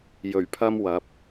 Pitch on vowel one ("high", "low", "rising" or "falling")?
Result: low